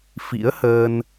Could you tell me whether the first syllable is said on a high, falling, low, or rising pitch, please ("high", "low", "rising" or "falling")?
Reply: rising